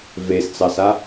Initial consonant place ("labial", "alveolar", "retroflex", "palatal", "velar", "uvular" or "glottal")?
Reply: labial